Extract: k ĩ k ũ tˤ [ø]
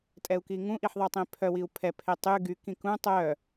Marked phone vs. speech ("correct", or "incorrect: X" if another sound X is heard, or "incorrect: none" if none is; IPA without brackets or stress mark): incorrect: œ